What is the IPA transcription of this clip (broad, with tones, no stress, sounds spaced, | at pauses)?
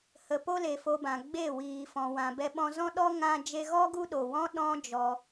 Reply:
h ə˨ p o˧ l e˨ f o˧ b ã˨ ɡ͡b e˦˨ w iː˨ f ɔ̃˨ w ã˨ b ɛ˧ ɓ ɔ̃˧ z ɔ̃˦ ɗ ɔ˦ ŋ ã˧ d͡ʒ e˧ ɣ ɔ˦ ɡ u˦ ɗ o˨ w ɔ̃˦ ɗ ɔ̃˦ d͡ʒ ɔ˧